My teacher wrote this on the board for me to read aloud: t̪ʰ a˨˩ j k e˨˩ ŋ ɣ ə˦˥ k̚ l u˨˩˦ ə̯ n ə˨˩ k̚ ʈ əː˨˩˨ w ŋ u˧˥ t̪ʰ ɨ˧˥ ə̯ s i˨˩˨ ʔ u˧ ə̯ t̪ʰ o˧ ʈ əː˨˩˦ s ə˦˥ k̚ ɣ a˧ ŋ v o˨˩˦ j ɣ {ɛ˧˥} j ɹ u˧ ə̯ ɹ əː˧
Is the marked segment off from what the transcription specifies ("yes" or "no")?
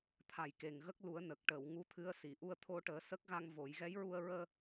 no